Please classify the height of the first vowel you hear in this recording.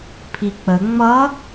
high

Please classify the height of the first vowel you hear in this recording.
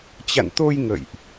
low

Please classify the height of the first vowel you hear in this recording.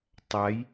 low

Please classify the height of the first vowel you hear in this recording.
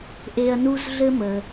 mid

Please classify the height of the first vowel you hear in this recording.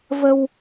mid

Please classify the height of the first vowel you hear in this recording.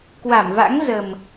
low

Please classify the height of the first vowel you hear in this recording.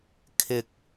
high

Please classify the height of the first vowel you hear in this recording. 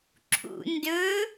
high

